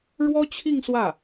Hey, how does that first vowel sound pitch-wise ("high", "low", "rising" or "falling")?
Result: high